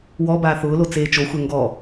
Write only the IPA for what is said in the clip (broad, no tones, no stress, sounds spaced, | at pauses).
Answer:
w ɔ b aː θ ʊː l o t͡s eː t͡ʃ o xʷ ɛ ŋ ɡ ɔ